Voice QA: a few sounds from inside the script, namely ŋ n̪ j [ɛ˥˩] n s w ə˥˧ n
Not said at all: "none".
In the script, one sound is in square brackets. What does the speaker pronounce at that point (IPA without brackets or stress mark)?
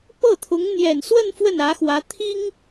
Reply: ɛ˨˩